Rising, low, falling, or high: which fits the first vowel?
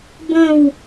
falling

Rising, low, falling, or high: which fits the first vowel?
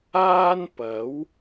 high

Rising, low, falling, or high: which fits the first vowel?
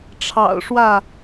low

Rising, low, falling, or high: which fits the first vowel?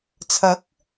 rising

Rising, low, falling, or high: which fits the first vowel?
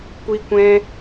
high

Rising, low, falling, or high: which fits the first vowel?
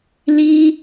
high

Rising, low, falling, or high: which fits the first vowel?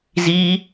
high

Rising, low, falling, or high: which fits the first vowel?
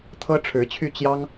high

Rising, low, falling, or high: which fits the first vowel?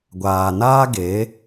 low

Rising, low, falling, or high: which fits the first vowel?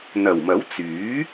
low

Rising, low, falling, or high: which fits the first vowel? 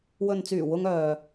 low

